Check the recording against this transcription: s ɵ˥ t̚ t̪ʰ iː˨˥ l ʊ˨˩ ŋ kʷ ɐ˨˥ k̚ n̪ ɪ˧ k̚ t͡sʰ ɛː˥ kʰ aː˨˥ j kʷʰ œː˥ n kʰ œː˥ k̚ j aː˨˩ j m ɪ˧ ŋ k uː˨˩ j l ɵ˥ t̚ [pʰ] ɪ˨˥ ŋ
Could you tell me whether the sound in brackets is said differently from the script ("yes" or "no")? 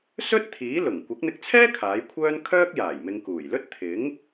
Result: yes